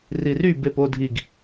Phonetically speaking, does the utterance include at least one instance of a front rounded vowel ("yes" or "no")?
yes